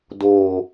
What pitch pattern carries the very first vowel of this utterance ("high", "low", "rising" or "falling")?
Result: low